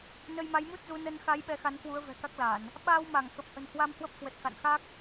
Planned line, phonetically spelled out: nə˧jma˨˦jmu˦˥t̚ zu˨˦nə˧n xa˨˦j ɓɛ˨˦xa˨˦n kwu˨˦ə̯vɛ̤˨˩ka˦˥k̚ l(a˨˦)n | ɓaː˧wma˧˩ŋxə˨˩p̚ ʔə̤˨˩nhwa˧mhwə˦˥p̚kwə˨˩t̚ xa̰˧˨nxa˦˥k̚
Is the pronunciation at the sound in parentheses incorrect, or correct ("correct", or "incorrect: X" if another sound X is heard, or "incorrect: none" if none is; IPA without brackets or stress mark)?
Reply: incorrect: a˧˩˨